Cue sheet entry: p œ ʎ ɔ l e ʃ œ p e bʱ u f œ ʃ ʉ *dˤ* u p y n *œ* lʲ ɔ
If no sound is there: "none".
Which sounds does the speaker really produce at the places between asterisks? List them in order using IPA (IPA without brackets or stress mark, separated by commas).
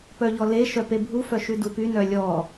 d, œ